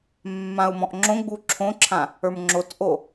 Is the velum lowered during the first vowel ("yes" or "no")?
yes